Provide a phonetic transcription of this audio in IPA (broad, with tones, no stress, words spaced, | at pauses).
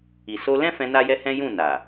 i˨so˧lɛ̃˦fɛ̃˧ na˦jɛ˦hɛ̃˦ jũ˦˨na˨